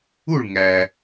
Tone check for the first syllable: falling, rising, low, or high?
falling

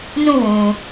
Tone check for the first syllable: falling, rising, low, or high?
falling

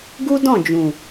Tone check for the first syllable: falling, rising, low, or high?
high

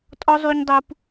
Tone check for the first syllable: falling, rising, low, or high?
high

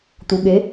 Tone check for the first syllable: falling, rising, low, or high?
low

